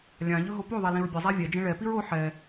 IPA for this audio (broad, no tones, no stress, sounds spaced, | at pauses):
lʲ ã ʎ ɵ ɦ o p o ðˤ ɛ l ĩ ɹ bʲ ɘ zˤ a vʲ ɛ d͡ʒ ẽ ɭ ɛ p i ɹ o ħ ɛ